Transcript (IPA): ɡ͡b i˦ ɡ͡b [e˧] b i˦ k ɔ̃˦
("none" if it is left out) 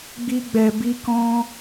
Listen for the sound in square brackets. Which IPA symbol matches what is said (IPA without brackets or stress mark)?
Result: ɛ˧